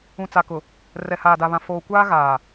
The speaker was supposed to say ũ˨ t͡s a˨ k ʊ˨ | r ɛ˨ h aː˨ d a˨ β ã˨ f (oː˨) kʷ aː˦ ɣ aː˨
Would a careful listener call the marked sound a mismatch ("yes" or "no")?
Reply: no